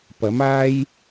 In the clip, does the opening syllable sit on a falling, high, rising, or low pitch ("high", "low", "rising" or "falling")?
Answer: rising